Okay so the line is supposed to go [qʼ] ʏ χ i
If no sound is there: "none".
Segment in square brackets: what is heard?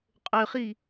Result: qʼ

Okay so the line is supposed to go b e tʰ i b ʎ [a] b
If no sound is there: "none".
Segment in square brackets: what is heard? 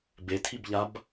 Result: a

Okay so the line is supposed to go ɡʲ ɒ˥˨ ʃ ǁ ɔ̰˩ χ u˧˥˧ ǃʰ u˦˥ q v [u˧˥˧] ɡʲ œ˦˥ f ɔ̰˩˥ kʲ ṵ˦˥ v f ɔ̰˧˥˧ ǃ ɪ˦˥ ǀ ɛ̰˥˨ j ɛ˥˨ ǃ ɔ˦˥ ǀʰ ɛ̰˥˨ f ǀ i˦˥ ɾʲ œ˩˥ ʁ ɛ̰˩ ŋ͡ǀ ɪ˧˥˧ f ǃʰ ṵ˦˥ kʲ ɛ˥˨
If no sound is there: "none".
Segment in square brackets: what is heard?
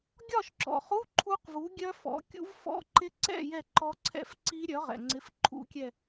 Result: u˩˥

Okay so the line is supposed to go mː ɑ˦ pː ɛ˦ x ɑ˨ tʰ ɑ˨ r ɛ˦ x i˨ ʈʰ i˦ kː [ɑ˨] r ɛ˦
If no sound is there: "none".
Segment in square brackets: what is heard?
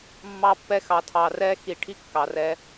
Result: ɑ˨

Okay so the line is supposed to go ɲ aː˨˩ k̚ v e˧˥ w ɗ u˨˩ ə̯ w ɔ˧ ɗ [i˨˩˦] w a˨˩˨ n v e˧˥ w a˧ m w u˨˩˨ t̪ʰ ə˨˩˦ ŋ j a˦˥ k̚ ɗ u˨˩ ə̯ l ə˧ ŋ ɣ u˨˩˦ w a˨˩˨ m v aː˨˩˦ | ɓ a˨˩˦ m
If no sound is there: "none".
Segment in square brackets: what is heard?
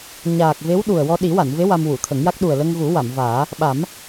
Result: i˨˩˦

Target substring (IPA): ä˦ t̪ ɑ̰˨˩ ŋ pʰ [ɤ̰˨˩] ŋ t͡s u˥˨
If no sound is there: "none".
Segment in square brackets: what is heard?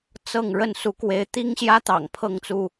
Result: ɤ˥˨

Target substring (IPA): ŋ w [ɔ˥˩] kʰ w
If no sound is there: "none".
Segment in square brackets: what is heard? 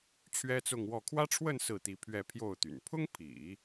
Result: ɔ˥˩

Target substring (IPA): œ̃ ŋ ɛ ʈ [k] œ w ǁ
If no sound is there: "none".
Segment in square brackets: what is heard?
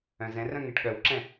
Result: ɠ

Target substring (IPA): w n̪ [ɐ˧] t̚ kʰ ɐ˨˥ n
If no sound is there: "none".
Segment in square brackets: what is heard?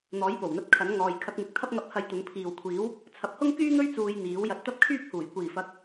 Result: ɐ˧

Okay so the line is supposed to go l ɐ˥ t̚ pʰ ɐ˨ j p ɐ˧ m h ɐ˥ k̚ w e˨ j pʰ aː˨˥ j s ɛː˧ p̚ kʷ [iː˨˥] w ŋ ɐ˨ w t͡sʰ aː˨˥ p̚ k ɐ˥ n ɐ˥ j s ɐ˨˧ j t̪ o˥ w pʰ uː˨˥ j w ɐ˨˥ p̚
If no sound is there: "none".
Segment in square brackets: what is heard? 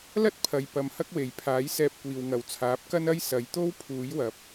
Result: iː˨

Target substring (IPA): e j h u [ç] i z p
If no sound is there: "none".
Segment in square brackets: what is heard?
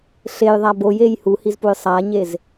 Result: h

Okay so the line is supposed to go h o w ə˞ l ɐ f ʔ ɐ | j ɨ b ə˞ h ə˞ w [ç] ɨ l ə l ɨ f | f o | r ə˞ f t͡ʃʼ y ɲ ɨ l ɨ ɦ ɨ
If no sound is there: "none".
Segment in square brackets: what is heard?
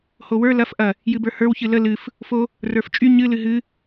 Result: ç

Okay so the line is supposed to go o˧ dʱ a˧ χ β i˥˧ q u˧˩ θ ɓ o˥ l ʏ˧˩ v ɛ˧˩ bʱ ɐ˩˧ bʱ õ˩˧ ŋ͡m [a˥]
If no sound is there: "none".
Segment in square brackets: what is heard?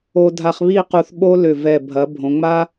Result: a˥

